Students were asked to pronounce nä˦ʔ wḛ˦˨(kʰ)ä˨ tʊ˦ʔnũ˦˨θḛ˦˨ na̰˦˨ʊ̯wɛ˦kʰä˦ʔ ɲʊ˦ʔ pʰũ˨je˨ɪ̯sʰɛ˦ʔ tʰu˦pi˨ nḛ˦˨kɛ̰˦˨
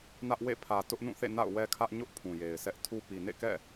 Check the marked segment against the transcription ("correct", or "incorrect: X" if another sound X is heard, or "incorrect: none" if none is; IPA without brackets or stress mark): incorrect: pʰ